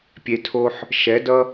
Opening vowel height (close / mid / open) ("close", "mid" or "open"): mid